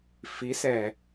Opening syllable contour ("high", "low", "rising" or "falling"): rising